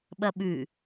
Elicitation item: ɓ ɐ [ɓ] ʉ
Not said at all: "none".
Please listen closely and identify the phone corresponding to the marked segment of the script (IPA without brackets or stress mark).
ɓ